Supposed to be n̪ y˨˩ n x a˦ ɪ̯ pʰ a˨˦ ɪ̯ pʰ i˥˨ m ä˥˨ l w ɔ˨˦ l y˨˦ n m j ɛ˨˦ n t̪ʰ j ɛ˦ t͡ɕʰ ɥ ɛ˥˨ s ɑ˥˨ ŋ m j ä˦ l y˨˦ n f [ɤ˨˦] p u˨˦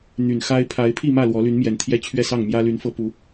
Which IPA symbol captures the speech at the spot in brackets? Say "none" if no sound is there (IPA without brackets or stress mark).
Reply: ɤ˨˦